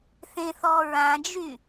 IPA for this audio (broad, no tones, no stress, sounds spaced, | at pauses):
θ ẽ θ ɔ ɹ ã d͡ʒ y